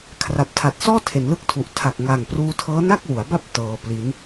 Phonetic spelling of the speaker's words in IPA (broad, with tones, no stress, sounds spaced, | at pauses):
kʰ r a˨˩ p̚ tʰ a˨˩ t̚ s ɔː˥˩ tʰ e˩˦ n l ɯ˦˥ k̚ tʰ u˨˩ ʔ tʰ a˨˩ k̚ ŋ a˨˩ ŋ p r uː˧ tʰ ɤː˦˥ n a˥˩ k̚ w u˩˦ a̯ b a˥˩ p̚ t ɤː˧ p l i˦˥ n